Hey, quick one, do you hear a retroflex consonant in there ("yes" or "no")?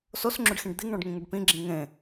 yes